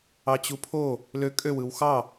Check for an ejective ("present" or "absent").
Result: present